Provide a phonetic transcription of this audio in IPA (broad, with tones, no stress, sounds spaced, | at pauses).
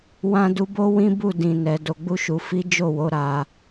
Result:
w ã˧ d u˧ b o˦ w ĩ˦ b u˦˨ d ĩ˨ n ɛ˨ d o˨ ɡ͡b u˧ ʃ u˨ f i˨˦ d͡ʒ o˦˨ w o˨˦ ɾ a˧